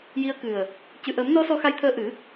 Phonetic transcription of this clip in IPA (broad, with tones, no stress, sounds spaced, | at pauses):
j i˧ ə̯ k ɨ˨˩ ə̯ | c ɨ˨˩˨ ʔ əː˨˩˦ m n ɔ˧˥ s ɔ˧˥ x a˧˥ j t̪ʰ əː˧ ʔ ɨ˨˩˦